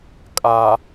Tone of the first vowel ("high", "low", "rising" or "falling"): low